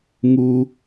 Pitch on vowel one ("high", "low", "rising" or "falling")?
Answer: low